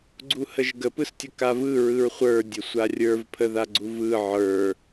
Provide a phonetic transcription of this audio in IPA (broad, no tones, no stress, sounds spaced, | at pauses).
ɡ͡ǀ u h ə ʒ ɡ ə p ɯ s tʲ ə k a v ɯ ɹ ɯ ɹ χʷ ə˞ dʲ ə sʷ a rʲ ə˞ v pʰ ə ð a ɡ͡ǀ u v ɯ ʕ ə˞